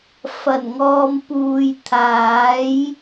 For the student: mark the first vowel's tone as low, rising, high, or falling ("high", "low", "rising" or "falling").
low